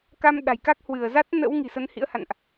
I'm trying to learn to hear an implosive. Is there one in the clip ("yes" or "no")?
yes